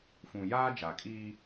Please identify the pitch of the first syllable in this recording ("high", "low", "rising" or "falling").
low